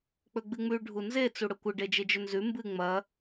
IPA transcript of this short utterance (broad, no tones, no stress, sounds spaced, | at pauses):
k͡p ɵ ɡ͡b ɨ ŋ͡m ʉ ɖʱ u n z e t͡s u ɽ ɵ kʷ ɨ ɖ e d͡ʒ e d͡ʒ ɵ n z ʉ m b ɨ ŋ͡m ɐ